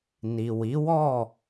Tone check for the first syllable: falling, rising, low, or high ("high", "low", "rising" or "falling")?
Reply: low